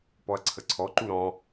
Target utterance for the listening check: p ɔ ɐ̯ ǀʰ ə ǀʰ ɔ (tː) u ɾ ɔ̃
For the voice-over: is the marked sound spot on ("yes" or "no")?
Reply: no